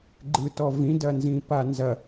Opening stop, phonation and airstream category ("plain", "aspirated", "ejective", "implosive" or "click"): click